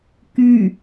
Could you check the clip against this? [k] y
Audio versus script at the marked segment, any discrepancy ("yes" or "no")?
no